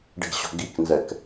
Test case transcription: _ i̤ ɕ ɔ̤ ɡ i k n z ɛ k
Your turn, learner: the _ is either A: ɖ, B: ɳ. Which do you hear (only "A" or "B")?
A